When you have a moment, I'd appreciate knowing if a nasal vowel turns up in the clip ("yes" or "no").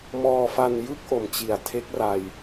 no